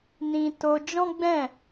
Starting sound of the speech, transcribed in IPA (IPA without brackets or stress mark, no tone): n